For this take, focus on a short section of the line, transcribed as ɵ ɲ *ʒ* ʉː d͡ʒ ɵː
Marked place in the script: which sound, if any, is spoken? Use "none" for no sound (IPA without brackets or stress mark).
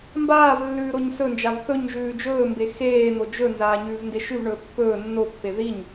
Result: ʒ